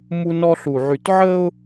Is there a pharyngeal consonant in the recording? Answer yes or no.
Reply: yes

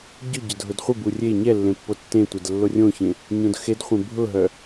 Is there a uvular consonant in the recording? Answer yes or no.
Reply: yes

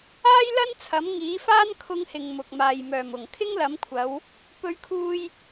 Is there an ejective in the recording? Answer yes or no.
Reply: no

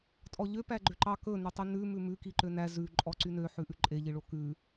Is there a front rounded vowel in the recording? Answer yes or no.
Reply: yes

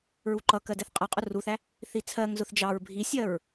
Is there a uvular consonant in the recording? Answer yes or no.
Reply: yes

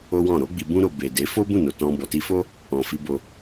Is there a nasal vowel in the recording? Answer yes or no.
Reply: yes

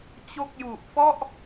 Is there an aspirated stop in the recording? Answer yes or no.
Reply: no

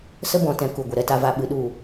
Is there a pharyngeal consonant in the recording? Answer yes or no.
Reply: no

